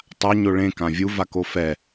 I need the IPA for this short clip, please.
tˤa ɲoɭẽ kãvʲu vakofɛ

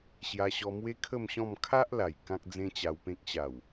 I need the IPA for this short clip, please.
ɕja˧ɕɔ˧mwe˦ kʰə˥˧mɕɔ̃˥˧m kʰa˦ʔ la˨˩j kã˦k̚d͡zẽ˦t͡ɕa˧wpẽ˦k̚ ɕa˨˩w

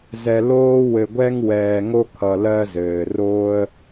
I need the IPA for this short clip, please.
zɛ˨loː˥ wɘ˨ɡʷɛ˥ŋ wɛː˨ŋo˥kʰʌ˨ lɜ˦zɘː˩ roː˥ə̯

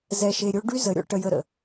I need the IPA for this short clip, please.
zɛ˧ʃe˧ɾʲo˦ ɖy˦zə˨˦ɾʲɔ̰˧ ʈə˧jə˧ɾə̰˨

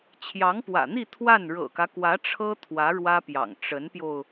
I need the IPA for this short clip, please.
t͡ɕʰjɑ˧˥ŋpwä̰˨˩n̪i˥˧ t̪ʰwa˥˩n ɻɤ̰˨˩kä˦kwä˧˥ ʈ͡ʂʰɤ˥ t̪ʰwä˧˥ɻwä˥pjɑ̰˨˩ŋ ʈ͡ʂə˧˥npjo˧ʊ̯

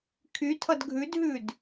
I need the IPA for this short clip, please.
kʰytʰʌd ɡʱʉdɦʉd

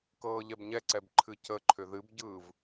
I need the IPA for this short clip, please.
kɤːʎɛbɲɛǀɛb ǃʰɨcəǃʰʏ ðɨbɟɯːv

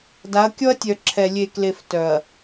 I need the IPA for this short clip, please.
da˨˦ɐ̯kʲɔ˦ɐ̯tʲœ˨ ǁʰɛ˨ lʲe˨kle˨f tœ˨ɐ̯

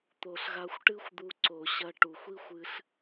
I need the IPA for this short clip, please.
t̪o˨ɬɣa˧xʷʈɨ˦xʷd̪u˧ ǀo˨ɕɐ˧ ʈu˨xʷi˦xʷ ɨ˧ɬ

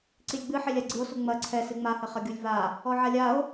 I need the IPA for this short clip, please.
ǀilʲɡ͡bɨħelʲa ɡ͡ǀɨo̯su ŋ͡mɐ ǀʰɛ sɨŋ͡mahɘ χɐɡʲulʲva | ɔʕalʲao̯

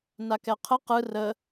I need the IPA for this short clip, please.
nakɛqʰə qɯ rə

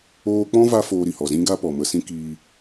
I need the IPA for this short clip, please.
oː˦ k͡pɔ̃˦va˧ foː˧ɾi˨hɔ˨zĩ˦ ɡa˦pɔ˨mə˧sĩ˦ kiː˧

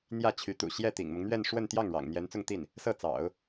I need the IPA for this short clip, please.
n̪jä˥˩t͡ɕʰy˧˥t̪ṵ˨˩ ɕjɛ˥˩t̪ḭ˨˩ŋmʊ˦ŋn̪ɥɛ˥˧n ʂwə˥˧nt̪jɑ˥˩ŋ ɻɑ̰˨˩ŋ n̪jɛ˧˥nt͡sʊ˥˧ŋt̪i˥˩n | sɤ˥˩t͡sɑ̰˨˩˦ʊ̯

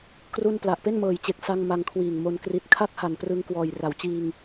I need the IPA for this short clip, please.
kru˥˩n pla˨˩ʔpe˥˩nmɤː˨˩jt͡ɕe˨˩k̚ sa˧ŋ ma˧ŋkʰwiː˨˩ŋmo˧n kri˨˩t̚kʰa˥˩k̚ha˨˩n prɯ˧ŋ kwɔː˨˩jra˩˦wt͡ɕiː˧ŋ

